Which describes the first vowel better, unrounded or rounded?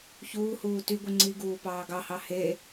rounded